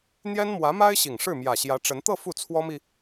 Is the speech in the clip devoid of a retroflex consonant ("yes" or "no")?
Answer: no